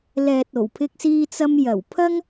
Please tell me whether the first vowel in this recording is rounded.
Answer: no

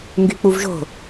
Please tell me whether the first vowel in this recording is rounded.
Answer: yes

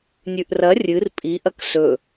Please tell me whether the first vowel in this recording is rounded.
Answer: yes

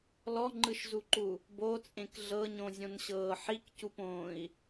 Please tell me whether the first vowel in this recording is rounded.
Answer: yes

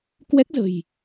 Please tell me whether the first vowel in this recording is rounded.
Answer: no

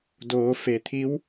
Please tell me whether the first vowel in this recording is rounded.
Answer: yes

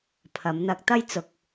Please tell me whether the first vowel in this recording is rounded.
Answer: no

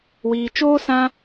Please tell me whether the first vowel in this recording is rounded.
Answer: no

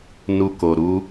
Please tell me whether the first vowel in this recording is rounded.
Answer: yes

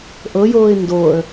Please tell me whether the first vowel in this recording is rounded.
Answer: no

